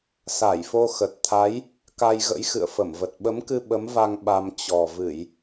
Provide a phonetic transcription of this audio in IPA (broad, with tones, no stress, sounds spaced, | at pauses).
s a˧˩ j f o˧ x ə˨˩ t̚ t̪ʰ a˨˦ j | k a˧ j ɣ ə̰˧˥ j x ɨ̰˧˨ ə̯ f ə˧˩ m v ə˨˩ t̚ ɓ ə˨˦ m k ɨ˧ ɓ ə˨˦ m v a˧ ŋ ɓ a˧ m t͡ɕ ɔ˨˩ v ɨ˧˩˨ j